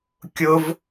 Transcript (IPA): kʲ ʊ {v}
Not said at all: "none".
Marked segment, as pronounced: v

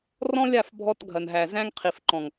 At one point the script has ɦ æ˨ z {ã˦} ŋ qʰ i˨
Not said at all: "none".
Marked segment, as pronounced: æ̃˦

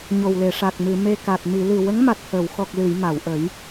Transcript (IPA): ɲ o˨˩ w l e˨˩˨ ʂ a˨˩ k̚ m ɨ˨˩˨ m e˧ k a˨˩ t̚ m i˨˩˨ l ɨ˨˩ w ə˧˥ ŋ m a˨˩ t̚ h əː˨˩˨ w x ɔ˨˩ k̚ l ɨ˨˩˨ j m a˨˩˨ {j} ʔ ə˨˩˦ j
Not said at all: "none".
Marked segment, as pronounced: w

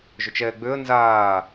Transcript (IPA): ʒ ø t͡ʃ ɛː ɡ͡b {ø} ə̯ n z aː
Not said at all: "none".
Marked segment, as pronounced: ø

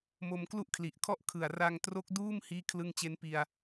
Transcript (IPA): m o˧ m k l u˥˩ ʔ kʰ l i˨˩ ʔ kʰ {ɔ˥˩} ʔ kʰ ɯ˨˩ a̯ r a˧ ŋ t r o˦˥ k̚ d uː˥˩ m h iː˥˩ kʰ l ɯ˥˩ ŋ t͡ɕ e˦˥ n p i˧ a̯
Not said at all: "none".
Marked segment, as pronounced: ɔ˥˩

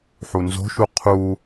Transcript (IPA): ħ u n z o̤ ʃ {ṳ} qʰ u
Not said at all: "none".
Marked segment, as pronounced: u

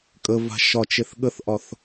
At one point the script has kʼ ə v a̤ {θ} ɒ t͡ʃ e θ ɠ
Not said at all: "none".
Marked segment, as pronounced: ʃ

